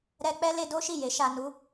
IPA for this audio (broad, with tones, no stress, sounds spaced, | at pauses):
ɾ ɛ˧ k͡p ɛ˦ l e˧ d o˦ ʃ i˦˨ j e˨˦ ʃ a˧ n u˦